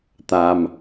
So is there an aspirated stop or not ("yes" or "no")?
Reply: no